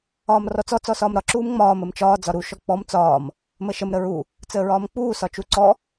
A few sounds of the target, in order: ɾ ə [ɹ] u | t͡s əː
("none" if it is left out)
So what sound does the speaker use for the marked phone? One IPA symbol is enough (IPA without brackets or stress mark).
ɹ